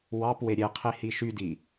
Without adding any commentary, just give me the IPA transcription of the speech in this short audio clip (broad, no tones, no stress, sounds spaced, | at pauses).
w ɑ p w e ɾʲ e qʰ i h i ʃ y d i